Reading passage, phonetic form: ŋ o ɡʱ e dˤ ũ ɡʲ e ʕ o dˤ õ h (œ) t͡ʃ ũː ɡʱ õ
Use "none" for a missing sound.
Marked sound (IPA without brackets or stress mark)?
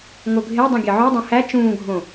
æ